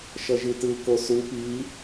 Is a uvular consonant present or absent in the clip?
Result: absent